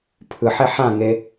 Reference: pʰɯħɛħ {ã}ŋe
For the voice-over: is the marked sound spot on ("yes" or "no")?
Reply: yes